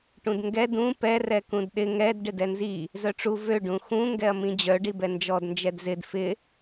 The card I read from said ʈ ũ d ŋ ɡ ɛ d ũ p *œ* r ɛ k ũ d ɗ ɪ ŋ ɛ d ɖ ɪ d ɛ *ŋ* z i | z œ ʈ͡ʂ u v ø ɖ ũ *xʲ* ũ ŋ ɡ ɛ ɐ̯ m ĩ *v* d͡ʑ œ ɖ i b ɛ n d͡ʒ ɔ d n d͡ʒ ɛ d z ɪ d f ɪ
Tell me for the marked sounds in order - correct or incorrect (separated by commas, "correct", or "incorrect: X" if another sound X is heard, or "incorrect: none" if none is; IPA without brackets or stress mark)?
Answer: incorrect: ɛ, incorrect: n, incorrect: x, incorrect: none